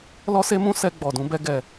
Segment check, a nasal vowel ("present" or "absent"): present